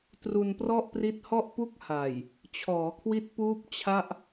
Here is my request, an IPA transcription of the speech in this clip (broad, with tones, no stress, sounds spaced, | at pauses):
t r u˧ n p r ɔ˥˩ ʔ p r i˦˥ t̚ h ɔ˥˩ ʔ p u˥˩ k̚ h a˨˩ j | t͡ɕʰ ɔː˩˦ kʰ w i˦˥ t̚ p uː˦˥ p̚ t͡ɕʰ a˥˩ ʔ